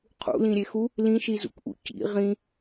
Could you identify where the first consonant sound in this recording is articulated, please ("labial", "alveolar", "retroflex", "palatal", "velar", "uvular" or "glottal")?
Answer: uvular